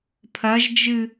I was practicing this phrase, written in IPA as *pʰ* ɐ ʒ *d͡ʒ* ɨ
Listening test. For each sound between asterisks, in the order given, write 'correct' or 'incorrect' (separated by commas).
correct, correct